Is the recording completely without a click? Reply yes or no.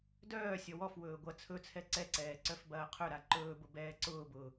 no